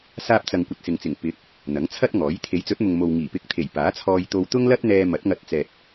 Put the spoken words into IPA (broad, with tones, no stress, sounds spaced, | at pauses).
s aː˧ p̚ t͡s ɐ˨ ŋ kʷ ɐ˧ t̚ s ɪ˨ ŋ t͡s ɪ˨˩ ŋ p ɪ˨˥ k̚ | n̪ ɐ˨˥ ŋ t͡sʰ ɐ˥ t̚ ŋ ɔː˨˥ j t̪ʰ e˨˥ j t͡s ɵ˨˥ t̚ m ʊ˨ ŋ m o˨ w ŋ iː˨˩ p ɪ˧ k̚ t̪ʰ e˨˩ j p aː˨˥ t͡sʰ ɔː˧ j t̪ o˧ w t̪ ʊ˥ ŋ l ɐ˥ t̚ n̪ ɛː˧ m ɐ˨˥ t̚ ŋ ɐ˧ t̚ t͡s ɛː˨ t̚